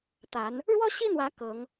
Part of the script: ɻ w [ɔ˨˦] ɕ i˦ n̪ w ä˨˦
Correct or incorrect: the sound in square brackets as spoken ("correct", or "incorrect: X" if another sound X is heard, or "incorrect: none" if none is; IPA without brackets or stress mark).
incorrect: ɔ˦